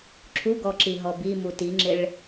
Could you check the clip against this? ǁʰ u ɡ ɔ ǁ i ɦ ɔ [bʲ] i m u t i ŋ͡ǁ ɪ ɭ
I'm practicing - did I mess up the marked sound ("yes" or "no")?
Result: yes